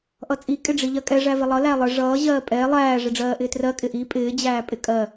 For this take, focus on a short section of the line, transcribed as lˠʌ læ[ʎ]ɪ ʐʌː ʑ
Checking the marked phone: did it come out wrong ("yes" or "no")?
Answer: yes